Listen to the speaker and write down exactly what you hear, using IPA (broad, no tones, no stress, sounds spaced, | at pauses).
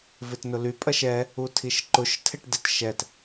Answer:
v ɪ t n ʊ l y pʼ ɐ ʃ ɛ | u tʰ i ʃ ǃ ʊ ʃ tʰ ɪ ʈ d ɪ t ʃ ɛ t